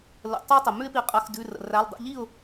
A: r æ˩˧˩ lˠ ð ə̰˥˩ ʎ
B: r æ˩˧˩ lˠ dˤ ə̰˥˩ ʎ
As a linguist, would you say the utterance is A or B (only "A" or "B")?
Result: B